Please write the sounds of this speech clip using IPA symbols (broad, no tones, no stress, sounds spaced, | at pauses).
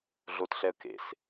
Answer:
ɮ o t ɬ ɛ ə̯ k ḛ s